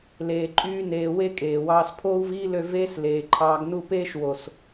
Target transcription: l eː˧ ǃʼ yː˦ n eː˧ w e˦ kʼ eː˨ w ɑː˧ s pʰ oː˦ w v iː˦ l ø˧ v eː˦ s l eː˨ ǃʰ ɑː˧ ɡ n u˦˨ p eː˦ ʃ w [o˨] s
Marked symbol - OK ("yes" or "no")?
yes